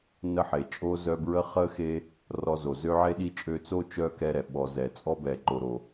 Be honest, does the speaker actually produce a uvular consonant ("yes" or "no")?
yes